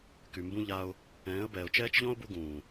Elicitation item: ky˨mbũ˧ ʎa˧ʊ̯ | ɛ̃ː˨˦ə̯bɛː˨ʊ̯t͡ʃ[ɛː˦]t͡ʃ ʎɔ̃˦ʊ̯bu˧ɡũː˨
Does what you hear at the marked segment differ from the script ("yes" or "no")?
no